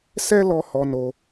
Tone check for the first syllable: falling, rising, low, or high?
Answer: high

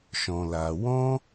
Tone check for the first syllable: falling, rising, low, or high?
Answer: low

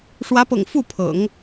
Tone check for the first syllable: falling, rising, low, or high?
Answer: rising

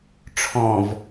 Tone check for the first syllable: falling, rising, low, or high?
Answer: low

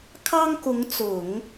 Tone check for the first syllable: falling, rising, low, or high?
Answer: high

